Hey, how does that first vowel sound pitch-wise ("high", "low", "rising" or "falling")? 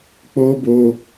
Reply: high